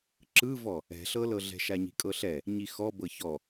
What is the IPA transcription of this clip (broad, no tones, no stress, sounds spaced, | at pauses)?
ǁ ɯ v ɔ | ɛ̤ ɬ ɤ l ɤ ɮ ɛ̤ ʃ a ɲ i̤ kʼ ɤ ɬ ɛ | ɲ i x ɔ b ɤ ç ɔ